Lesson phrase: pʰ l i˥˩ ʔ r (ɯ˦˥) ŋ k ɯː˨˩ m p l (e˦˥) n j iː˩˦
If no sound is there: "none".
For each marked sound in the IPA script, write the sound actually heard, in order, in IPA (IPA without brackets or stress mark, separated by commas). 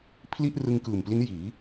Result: ɯ˧, i˦˥